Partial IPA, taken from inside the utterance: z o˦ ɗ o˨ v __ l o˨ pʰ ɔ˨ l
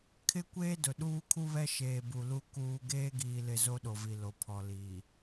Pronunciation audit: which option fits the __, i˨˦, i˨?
i˨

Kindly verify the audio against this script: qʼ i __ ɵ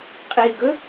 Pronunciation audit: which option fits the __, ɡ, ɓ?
ɡ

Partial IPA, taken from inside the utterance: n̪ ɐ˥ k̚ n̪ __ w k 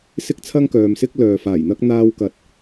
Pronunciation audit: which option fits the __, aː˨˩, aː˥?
aː˥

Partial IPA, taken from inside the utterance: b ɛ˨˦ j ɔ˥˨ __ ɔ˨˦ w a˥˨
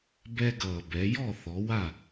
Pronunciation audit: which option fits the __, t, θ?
θ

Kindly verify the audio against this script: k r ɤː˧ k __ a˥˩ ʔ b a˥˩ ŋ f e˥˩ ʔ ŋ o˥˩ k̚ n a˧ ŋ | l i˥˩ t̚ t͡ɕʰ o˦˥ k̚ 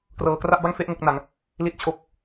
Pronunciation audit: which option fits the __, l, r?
r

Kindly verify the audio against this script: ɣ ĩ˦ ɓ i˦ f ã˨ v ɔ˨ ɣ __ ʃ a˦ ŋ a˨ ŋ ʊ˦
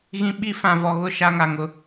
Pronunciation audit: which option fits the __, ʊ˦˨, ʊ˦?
ʊ˦˨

